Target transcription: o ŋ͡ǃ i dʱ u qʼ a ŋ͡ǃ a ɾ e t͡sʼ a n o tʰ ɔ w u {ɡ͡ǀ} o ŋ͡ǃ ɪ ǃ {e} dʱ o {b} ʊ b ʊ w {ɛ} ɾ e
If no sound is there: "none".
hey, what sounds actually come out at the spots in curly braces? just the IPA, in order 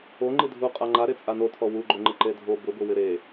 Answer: ɡ͡ǃ, e, b, ɪ

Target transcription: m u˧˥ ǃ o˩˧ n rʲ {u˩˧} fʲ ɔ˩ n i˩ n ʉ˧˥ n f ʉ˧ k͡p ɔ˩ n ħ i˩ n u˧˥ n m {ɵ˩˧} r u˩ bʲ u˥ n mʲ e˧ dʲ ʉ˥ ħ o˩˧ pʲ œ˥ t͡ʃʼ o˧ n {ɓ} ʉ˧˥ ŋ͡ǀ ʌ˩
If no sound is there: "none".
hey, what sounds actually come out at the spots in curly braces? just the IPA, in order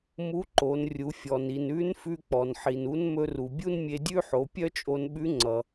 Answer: u˩˧, ɵ˧, ɓ

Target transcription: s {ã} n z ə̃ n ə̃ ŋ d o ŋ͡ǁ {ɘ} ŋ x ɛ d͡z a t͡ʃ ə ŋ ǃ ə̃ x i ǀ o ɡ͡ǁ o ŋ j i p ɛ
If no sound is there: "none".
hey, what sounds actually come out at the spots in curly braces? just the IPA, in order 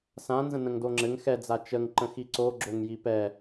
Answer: ã, ɘ

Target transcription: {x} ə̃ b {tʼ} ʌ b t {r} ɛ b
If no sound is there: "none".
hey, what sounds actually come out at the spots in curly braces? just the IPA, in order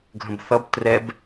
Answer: ɡʱ, θ, r

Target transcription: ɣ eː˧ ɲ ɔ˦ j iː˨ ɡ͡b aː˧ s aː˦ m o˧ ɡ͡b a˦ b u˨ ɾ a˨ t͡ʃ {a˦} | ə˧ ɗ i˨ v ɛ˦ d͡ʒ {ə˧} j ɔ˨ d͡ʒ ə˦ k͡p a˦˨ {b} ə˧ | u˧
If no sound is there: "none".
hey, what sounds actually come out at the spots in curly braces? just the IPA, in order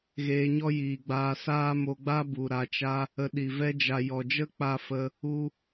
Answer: a˧, a˧, f

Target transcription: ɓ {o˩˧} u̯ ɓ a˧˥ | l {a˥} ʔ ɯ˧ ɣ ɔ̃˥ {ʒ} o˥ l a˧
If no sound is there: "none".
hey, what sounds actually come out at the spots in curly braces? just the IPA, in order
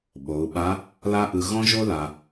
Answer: o˩˧, a˥, ʒ

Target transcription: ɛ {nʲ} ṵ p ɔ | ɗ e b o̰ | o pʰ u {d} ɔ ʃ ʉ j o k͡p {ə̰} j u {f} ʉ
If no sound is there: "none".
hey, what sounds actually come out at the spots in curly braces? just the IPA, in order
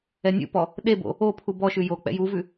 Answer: nʲ, b, ɛ̰, v

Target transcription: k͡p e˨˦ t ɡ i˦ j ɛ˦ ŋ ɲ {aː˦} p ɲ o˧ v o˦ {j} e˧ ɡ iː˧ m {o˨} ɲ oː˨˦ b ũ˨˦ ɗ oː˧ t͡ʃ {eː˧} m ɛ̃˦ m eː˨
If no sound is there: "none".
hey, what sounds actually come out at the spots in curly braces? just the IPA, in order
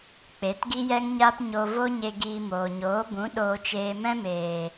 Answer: aː˦, ɲ, oː˨, eː˧

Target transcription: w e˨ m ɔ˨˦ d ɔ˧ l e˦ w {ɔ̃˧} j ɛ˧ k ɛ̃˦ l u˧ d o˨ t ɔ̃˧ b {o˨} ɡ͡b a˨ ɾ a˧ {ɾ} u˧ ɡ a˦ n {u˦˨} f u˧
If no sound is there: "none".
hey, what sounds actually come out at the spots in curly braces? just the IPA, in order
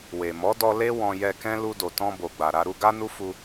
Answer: ɔ̃˧, o˨, ɾ, u˦

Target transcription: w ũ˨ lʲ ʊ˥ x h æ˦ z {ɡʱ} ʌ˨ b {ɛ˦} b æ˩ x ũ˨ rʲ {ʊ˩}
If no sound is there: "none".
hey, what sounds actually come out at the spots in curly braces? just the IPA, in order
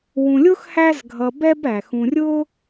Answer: ɡʱ, ɛ˦, ʊ˥

